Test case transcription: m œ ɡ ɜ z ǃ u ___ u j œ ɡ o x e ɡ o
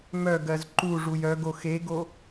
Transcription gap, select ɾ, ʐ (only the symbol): ʐ